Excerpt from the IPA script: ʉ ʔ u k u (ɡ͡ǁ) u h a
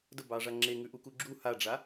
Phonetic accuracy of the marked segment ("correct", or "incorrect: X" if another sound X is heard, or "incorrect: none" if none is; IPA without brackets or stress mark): correct